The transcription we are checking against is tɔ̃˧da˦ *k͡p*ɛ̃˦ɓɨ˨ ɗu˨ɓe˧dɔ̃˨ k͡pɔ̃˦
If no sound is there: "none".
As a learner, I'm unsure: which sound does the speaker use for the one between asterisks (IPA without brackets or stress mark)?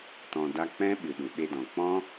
k͡p